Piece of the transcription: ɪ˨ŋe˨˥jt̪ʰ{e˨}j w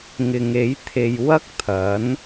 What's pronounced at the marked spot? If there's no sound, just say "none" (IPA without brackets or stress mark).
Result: e˨